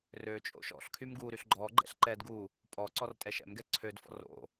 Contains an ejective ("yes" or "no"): yes